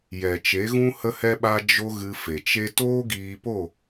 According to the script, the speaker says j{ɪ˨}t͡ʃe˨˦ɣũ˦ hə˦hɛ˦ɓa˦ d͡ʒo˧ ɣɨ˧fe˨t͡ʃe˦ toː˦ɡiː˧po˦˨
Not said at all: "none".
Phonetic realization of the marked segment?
ɛ˨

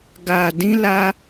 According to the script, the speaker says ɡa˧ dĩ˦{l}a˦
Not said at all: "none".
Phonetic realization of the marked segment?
l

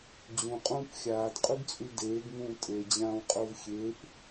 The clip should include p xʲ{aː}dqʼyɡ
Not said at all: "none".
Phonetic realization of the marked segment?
aː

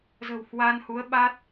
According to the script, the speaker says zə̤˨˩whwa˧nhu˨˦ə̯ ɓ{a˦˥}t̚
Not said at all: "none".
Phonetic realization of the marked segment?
a˦˥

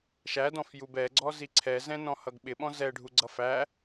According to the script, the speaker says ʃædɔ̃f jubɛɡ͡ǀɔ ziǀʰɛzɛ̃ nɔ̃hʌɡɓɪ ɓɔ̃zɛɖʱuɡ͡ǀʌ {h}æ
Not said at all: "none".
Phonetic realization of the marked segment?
f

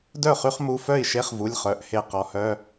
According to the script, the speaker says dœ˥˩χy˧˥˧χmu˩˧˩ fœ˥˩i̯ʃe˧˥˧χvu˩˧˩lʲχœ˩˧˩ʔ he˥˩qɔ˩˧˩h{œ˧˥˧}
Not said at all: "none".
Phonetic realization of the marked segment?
œ˧˥˧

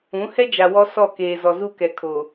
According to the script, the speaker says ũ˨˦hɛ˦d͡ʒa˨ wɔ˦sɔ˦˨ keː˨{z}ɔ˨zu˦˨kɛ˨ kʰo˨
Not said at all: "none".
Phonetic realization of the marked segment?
z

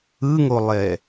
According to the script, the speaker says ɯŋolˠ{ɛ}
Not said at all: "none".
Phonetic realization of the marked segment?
ɛ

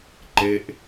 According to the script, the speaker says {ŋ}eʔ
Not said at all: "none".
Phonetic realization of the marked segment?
ǃ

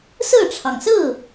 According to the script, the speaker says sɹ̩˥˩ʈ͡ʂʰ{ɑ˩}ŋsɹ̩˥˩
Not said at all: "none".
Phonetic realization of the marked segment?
ɑ˩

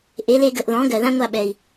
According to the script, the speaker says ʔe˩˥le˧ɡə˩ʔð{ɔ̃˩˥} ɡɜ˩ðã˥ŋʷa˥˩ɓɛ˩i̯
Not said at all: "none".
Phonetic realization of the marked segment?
ɔ̃˩˥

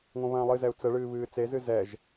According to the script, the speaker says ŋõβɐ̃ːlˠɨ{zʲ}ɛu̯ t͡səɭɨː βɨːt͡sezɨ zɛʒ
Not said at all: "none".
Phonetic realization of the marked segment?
z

